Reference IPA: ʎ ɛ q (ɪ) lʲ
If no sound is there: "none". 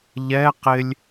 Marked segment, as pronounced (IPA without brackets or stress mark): ɪ